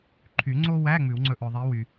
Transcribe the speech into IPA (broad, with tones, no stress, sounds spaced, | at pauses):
ǃʰ y˨˩˦ ŋ͡ǀ o˥ w æ˧˥˧ ŋ͡m ʉ˨˩˦ w ŋ͡ǀ ɵ˦˨ ʔ ɵ˨ ðˤ i˧˥ w y˨